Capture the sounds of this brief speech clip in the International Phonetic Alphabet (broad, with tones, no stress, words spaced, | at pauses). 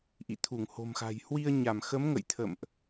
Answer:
ʔḭ˧˨t̪ʰu˧˩ŋho̤˨˩mxa̤˨˩j hwi˧ə̯ɲa˧˩mxə˨˦mŋə̰˧˨j t̪ʰə̰˧˨mʔ